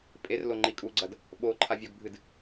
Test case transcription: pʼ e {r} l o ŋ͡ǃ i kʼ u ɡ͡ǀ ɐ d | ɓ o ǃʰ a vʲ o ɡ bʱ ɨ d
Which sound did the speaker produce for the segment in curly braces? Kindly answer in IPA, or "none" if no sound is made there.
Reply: r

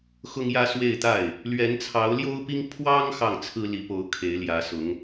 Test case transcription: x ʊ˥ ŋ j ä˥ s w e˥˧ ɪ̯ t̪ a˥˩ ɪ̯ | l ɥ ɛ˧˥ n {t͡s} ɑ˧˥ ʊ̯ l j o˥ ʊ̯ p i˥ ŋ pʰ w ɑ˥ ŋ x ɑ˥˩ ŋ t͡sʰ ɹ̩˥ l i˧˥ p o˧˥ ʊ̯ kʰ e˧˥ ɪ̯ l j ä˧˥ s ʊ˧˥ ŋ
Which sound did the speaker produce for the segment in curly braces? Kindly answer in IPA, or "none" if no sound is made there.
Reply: t͡sʰ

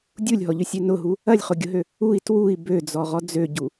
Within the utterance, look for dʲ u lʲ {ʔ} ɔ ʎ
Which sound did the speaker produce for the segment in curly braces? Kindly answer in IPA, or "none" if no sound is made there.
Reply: ɦ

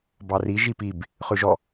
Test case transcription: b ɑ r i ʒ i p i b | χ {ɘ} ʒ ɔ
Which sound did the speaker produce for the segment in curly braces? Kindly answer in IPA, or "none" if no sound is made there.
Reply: ʉ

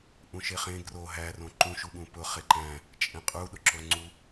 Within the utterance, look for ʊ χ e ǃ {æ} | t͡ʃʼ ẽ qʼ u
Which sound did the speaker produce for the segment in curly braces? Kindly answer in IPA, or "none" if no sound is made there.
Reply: æ̃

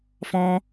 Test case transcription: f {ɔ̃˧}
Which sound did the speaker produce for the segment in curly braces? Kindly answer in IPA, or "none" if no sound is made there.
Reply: ɔ̃˧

